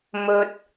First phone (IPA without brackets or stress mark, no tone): m